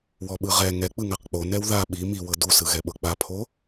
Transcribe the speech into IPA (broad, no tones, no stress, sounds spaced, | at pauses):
w ɔ ɓ ɯ ʁ ɛ ŋ ɛ k͡p ɯ ŋ a q k͡p o n ɛ w ð a ɓ i m i w ɤ d u s ɯ ɣ ɛ ɓ ɤ k͡p a pʰ o